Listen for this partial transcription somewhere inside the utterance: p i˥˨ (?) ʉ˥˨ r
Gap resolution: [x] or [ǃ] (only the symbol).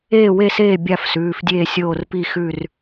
x